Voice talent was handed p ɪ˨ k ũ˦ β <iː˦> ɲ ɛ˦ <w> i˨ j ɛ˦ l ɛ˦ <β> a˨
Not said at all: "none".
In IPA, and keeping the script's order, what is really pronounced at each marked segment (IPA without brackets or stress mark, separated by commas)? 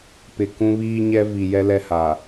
iː˦, v, h